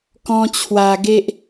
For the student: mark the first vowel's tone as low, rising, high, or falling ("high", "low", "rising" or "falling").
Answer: high